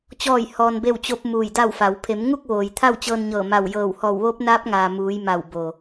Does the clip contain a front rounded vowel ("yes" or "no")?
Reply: no